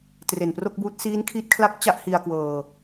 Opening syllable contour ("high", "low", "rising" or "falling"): low